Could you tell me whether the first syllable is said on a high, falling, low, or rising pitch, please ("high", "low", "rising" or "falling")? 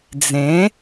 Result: rising